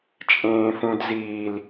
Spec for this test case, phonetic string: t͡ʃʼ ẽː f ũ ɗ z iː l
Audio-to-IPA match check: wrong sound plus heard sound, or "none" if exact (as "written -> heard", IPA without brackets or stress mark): ɗ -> d